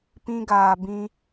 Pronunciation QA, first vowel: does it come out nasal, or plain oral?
nasal